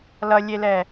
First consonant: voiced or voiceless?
voiced